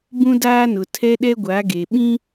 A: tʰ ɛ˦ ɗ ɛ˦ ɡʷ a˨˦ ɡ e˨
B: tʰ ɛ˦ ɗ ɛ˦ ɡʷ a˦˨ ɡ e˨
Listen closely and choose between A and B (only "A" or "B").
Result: A